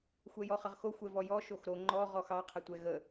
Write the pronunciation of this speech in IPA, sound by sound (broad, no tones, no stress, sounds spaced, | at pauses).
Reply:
xʷ ɛ j ɔ χ ə ʁ x o xʷ ɛ v ɔ j ɔ ʃ o x ɾ o ŋ͡ǃ ɔ ʁ ɔ x ɑ qʰ ə tʷ ɛ ɣ ə